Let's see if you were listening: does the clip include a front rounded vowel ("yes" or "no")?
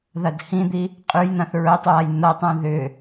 yes